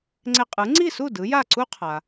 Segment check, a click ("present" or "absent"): present